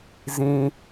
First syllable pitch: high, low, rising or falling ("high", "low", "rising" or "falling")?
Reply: low